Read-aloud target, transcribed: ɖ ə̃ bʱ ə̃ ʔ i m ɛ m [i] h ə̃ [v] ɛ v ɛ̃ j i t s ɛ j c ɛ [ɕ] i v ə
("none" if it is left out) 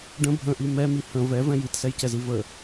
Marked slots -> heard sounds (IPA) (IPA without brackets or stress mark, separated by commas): i, v, z